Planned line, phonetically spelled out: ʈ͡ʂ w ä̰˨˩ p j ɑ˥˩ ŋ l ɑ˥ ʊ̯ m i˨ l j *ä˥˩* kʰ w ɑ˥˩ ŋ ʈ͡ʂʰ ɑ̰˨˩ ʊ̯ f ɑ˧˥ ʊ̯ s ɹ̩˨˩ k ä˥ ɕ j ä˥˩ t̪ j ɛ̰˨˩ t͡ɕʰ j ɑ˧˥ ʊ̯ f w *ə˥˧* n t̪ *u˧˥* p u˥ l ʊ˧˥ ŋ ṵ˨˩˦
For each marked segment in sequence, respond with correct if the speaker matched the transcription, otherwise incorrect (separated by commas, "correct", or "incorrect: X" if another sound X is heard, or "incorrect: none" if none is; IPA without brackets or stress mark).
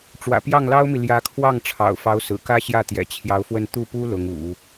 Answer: incorrect: ä˧˥, correct, incorrect: u˥˩